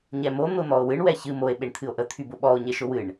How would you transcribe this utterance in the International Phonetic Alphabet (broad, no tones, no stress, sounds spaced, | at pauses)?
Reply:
ɲ ɛ m o n̪ ʊ n̪ ɔ o̯ w ɨ ɳ w ɛ ç ɨ m o e̯ ɓ e ɳ t̪ʰ ɨ o̯ ʔ ə t̪ʰ y b ʊ ɓ ɔ o̯ ɲ e ʃ ʊ w ɨ ɳ